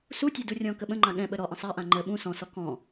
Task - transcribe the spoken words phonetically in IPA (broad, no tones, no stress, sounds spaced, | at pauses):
s u tʲ e d u rʲ ɔ̃ k ə ɓ ə̃ ŋ͡ǃ ã ɠ ɛ̃ ɓ ə ɾ ɔ ʔ ə̃ sˤ a ʔ ã ŋ͡ǃ ə ɓ ũ s ɔ̃ s ɔ k ɔ̃